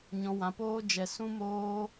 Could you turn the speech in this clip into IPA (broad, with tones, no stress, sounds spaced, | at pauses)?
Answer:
ɲ ɔ̃˧ w ã˧ p oː˦ d͡ʒ ɛ˧ s ũ˦ m oː˦